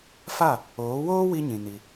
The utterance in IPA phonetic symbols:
fa˦˨ | oː˨˦woː˦wi˧ɲĩ˨ ni˧

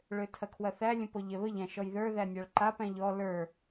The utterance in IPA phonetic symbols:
ɭøtʰɐkʰwɐθæ lʲə̃pɔʎɛβəʎ æ̃ʃɔjðə˞ ðænʲaɭǃap æ̃ʎɔ lə˞

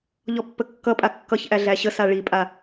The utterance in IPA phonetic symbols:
ʎɔpːəkːʌpʼa kːʌçʔæ ɮæɕəsa ɭipʼa

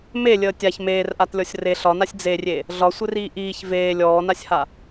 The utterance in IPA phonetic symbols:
melʲəː tʲaç meːrʔatlʲɔsʲ re ɬɒnasʲ d͡zerʲe | ɮɒsʷɘriː ʔiːç veː lʲɔːnasʲha

